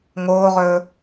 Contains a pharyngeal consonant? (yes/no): no